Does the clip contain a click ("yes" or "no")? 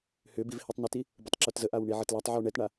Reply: yes